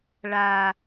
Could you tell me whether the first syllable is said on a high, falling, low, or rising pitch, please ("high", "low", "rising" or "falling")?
high